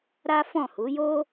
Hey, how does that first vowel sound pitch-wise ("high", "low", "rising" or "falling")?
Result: high